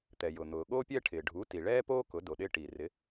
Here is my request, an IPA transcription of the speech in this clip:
t̪ ɛ˩ j ʊ˩ n̪ ʊː˩ ɠ oː˦ pʲ ɛ˦ ʈʰ ɪː˩ ɖʱ u˩˥ t i˩ ɭ ɛː˦ p oː˦ k ʊ˩˥ d o˩ ɗ ɪː˦ ʈ i˩ r ɪ˩˥

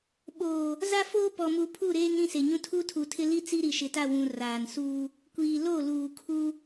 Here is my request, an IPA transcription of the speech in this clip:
ɓ oː˨ | z a˦ f oː˦ p ɔ˨ m u˨ pʰ u˦˨ ɾ eː˦ ŋ ɾ ĩ˦˨ s e˨ ɲ ũ˦ tʰ u˦ tʰ u˨ tʰ ɪ˦ l i˦ t͡s i˦ ɾ i˨ ʃ ɪ˨ t a˦˨ w ũ˨ r aː˨ n s uː˦ | kʷ iː˨ l o˦˨ l uː˨ kʰ u˦

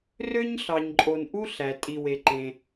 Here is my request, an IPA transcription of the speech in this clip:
r ø˥ ɲ ɬ ɑ˨ ɲ ǃʼ o˨ n ʔ u˥ ɬ æ˩ tʼ i˨ w e˨ ǃ ẽ˨

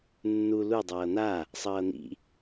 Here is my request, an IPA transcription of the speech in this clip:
nː u l u dˤ ʌː n̪ a | sˤ ʌː n̪ ḭ

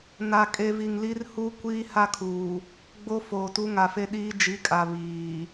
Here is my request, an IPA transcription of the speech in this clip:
n a˨ kʼ e˨ v i˨ ŋ l i˦ r h u˦ kʷ iː˦ h a˦ kʰ uː˨ | ɡ͡b o˦ f oː˨ t u˦ ŋ a˨ f e˦ ɗ iː˦ d͡ʒ i˨˦ kʼ a˨ β iː˨

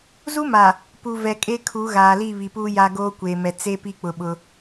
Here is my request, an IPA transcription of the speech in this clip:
z u˦ m a˨ | p u˨ v ɛ˨ kʼ e˦ kʰ u˨˦ ɣ aː˨ l i˦˨ β i˨ p uː˦ j a˦ ɡ oː˦ kʷ eː˨ m ɛ˨ t͡s e˦ p i˦ k͡p ʊ˨ ɓ ʊ˦

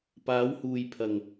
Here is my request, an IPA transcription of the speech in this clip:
p aː˨˧ w h uː˨ j pʰ ɐ˨ ŋ

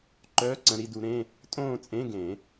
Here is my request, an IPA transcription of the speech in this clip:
ǃ œː˧˥˧ ǀ ə̃˩˧˩ ɾ i˥˧ d u˨˦ ɾ ẽ˧˥˧ | tʼ õː˥˧ t͡sʼ ẽ˧˥˧ ɡ ẽ˨˩˦

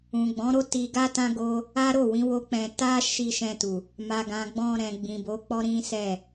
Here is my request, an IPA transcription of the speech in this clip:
ũ˨ ɡ͡b ɔ̃˨˦ ɾ o˦ t i˧ ɡ a˦ t ã˦ ɡ o˦ | a˦ ɾ o˦˨ w ĩ˨˦ w o˦ k͡p ɛ̃˧ t a˦ ʃ i˧ ʃ ɛ̃˧ t u˨ | m a˨ ɡ ã˨ ɡ͡b ɔ̃˧ ɾ ɛ̃˨ ɡ͡b ĩ˨ b o˨˦ k͡p ɔ˦ ɾ ĩ˦ s ɛ˦˨

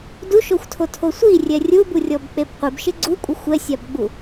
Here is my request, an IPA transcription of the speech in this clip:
d u ʃ o xʷ tʰ o tʰ o sʷ i rʲ ɛ rʲ u b u rʲ ɔ b k͡p e b qʷ e b ʃ ɪ ɡ͡ǀ u kʷʼ ɪ xʷ ɛ sʲ a b ɡ͡b u

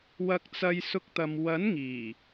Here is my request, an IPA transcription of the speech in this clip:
w ɐ˧ k̚ t͡s ɐ˧ j s ʊ˥ k̚ t̪ ɐ˧ m w ɐ˨˥ n ŋ iː˨˩

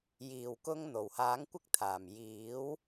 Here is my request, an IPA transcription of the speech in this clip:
j iː˨˩ w k ʊ˧ ŋ n̪ o˨˩ w h aː˨˥ ŋ kʷ ɪ˥ k̚ t̪ʰ aː˨˩ m j iː˨˥ w

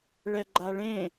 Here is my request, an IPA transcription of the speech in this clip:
ɭ ɛ ɡ͡ǃ a ɭ ẽ

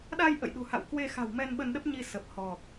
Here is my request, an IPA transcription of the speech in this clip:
ɗ aː˧ j ʔ ə̰˧˨ j ɗ ṳ˨˩ h a̰˧˨ w k w e˧ x a̤˨˩ w m ɛ˧ n ɓ ə˧ n ɗ ə˦˥ p̚ ɲ i˧ s ə˨˩ p̚ h ɔ˨˩ k̚

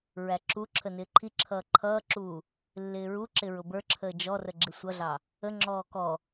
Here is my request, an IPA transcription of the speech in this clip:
ɹ æ ǁ u ǁʰ ə n ɪː ǃʰ i ǁʰ ʌː ǃʰ ʌː ǁ uː | lː ɪː ɹ u ǁ ɪ ɹ ʊ b ə˞ ǁʰ əː d͡ʒ ɔ r ə ɡ͡ǁ ɪ sʷ ʌ ɮ ɑ | ə ŋ͡ǁ ɔː k ɔ

